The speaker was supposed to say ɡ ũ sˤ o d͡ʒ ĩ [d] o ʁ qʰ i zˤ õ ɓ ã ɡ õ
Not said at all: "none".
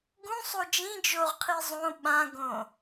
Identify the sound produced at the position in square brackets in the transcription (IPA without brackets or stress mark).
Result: d͡ʒ